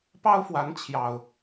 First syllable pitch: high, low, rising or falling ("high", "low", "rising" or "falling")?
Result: high